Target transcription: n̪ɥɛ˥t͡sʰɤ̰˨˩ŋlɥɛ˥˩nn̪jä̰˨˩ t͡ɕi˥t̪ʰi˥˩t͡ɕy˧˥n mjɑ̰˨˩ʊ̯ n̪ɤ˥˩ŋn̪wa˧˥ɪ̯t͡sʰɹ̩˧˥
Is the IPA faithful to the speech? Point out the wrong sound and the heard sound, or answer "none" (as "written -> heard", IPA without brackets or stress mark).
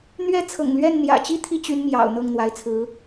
none